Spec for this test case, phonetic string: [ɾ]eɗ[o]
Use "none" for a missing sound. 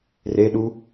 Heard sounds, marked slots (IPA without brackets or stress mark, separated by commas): r, u